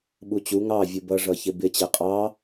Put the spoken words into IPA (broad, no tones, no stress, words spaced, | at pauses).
ɓut͡ɕu ŋɑ vʲubʌ ʐʌçɪbɪ t͡ɕɛqʼɑ